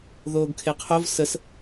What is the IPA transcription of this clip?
ð oː ɡ kʰ e qʰ o v s ə s

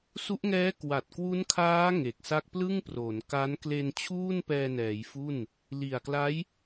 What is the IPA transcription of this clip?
s u˦˥ ʔ ŋ ɛː˦˥ k w a˨˩ t̚ k w u˦˥ n kʰ aː˦˥ ŋ e˨˩ k̚ s a˦˥ k̚ p l ɯ˥˩ ŋ p r o˩˦ n k a˦˥ n k l e˧ n t͡ɕʰ uː˥˩ n p ɛː˧ n ɛː˩˦ j f u˥˩ n | l i˨˩ a̯ k l a˦˥ j

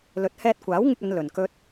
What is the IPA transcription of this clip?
l ɵ˨˥ t̚ h ɛː˧ t̚ kʷ aː˨˥ w ŋ ɪ˧ k̚ ɐ˨˧ n l ɵ˨ n k ɵ˧ t̚

